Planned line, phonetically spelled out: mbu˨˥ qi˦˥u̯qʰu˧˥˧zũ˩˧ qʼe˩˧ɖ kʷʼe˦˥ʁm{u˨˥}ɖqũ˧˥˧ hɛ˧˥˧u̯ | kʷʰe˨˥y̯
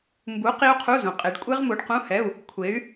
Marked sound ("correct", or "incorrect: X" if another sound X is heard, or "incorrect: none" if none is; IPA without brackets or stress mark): correct